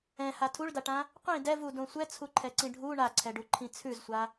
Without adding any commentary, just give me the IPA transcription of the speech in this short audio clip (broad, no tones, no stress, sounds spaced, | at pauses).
ɛ̃ h a tʰ u ɭ d a ʈ ã | qʷ ĩ d ɛ v u d õ sʷ ɛ t͡sʰ u ǃʰ ɛ ǀ ĩ ɖʱ u ɳ a ǀʰ ɛ ɖ u ǃʰ ĩ t͡sʰ ʉ z sʷ a